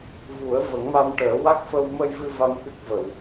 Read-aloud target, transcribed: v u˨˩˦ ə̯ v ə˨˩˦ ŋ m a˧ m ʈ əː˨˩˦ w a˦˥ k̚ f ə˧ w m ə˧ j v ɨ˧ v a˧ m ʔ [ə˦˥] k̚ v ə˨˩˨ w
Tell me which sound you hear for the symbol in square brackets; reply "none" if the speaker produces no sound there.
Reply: ɨ˦˥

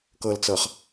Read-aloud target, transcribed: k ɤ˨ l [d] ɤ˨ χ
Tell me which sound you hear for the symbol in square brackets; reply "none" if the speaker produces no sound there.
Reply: t͡s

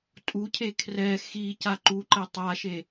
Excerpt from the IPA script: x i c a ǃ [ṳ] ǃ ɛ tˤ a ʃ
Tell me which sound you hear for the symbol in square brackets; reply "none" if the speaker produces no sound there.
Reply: u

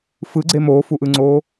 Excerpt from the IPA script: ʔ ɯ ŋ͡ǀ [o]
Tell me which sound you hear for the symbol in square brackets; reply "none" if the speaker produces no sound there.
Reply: oː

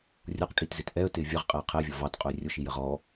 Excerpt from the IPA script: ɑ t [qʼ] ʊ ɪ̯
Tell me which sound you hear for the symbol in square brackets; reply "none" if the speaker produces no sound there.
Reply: qʼ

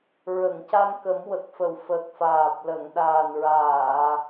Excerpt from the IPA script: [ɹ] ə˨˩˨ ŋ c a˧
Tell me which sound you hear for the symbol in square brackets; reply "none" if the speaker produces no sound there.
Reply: ɹ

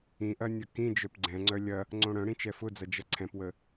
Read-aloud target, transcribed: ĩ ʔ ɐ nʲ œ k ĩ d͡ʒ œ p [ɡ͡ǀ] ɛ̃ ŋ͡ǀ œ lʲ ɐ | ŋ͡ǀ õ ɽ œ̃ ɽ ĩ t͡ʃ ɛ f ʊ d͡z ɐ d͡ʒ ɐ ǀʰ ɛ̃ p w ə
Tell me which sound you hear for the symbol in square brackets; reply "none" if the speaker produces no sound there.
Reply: ɡ͡ǀ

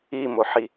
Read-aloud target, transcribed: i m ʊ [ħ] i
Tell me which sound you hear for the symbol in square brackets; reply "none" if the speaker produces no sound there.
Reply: ħ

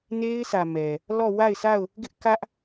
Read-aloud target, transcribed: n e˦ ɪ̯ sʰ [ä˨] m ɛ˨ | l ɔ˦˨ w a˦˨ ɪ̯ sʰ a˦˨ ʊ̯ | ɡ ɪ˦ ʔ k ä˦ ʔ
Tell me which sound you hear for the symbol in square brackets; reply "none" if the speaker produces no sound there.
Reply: ä˨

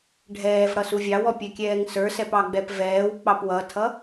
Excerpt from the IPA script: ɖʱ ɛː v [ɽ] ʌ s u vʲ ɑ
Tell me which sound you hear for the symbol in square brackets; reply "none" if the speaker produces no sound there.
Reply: ɽ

